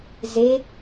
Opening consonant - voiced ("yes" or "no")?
yes